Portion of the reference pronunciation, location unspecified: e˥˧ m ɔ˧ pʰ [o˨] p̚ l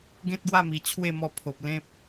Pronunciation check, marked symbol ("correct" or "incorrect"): correct